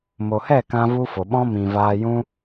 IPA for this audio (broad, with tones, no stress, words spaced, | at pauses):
mo˨hɛ˦˨ kã˦vu˦fo˨ ɓɔ̃˦mĩ˨ vaː˧jũ˦